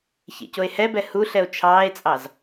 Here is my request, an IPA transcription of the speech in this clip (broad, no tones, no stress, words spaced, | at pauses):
çḛcoe̯hɛbɛ huɬɛo̯ t͡ʃʰɑːe̯t͡sʼɑz